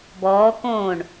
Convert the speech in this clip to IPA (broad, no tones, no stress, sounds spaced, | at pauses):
b ɔː k õː ɳ